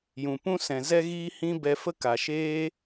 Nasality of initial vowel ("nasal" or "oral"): nasal